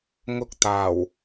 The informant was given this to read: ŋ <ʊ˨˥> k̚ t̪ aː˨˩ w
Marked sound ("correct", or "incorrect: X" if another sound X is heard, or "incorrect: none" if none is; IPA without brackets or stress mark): incorrect: ʊ˧